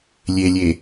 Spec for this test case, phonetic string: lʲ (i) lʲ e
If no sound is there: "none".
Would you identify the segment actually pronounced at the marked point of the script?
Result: e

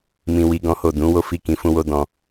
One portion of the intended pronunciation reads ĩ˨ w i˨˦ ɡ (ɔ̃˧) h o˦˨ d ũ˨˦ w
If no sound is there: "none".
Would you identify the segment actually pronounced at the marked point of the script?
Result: ɔ̃˦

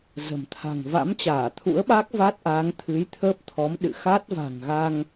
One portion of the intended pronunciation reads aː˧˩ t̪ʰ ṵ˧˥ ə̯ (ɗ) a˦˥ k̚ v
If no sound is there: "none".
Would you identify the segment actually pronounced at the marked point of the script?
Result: ɓ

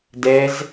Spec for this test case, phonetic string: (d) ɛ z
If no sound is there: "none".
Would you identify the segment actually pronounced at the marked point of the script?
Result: d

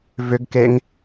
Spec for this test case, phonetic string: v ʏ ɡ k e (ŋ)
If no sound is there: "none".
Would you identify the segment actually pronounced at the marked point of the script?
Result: ŋ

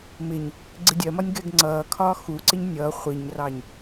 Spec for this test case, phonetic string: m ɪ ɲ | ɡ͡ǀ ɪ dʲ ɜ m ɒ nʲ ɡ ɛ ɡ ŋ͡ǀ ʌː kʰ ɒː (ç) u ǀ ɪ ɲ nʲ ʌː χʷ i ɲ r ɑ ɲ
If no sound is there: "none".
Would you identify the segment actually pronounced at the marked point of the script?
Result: x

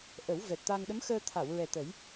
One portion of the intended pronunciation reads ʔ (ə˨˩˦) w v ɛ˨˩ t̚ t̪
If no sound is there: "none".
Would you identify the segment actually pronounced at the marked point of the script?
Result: ə˨˩˦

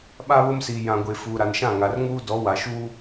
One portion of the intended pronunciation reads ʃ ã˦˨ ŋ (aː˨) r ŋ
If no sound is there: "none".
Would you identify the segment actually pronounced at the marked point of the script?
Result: a˨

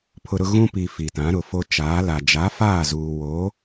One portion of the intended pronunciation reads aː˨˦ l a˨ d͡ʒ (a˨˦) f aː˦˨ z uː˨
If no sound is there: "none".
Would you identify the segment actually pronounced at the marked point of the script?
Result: a˨˦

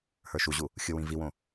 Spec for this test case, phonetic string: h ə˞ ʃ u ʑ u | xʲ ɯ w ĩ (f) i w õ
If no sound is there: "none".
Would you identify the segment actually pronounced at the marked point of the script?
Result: v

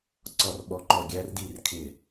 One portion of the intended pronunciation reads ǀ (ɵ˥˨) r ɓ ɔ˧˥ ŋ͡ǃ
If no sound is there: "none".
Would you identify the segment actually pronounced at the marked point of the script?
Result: ɔ˥˨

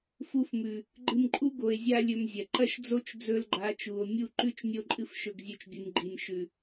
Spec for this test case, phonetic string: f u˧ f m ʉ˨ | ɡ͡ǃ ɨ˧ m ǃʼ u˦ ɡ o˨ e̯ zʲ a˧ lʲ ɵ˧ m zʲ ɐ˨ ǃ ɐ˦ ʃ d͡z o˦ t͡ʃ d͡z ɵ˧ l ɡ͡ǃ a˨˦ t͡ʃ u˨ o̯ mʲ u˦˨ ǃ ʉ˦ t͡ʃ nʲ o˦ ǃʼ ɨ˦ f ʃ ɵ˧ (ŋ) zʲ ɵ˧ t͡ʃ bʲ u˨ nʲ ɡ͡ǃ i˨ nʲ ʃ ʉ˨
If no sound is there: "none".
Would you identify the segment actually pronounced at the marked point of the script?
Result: ɡ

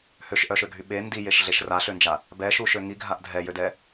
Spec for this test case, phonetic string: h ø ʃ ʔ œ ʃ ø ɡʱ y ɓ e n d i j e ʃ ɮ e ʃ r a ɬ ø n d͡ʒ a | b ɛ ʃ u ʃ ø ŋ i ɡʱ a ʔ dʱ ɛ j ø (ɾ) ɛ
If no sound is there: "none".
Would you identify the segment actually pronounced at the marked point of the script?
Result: d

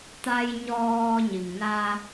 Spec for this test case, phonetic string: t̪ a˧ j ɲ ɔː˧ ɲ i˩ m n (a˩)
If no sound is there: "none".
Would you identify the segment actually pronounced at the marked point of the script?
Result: a˧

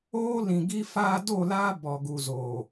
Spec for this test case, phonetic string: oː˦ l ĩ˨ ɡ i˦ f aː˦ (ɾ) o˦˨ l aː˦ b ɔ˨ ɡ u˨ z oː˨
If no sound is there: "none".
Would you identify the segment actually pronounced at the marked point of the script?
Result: d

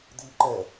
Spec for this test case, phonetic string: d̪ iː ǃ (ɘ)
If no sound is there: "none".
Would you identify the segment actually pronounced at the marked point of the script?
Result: ɛ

